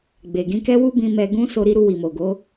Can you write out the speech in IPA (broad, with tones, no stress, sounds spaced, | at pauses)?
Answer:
ɡ͡b e˨ ɡ ĩ˧ k ɛ˦ w u˦ b ĩ˧ m ɛ˧ ɡ ũ˦ s o˧ ɾ i˧ ɾ u˧ w i˨ m o˨ ɡ o˨˦